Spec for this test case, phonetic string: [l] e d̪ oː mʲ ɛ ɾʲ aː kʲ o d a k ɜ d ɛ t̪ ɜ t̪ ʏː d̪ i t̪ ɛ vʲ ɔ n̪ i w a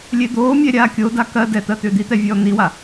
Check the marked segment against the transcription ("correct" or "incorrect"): incorrect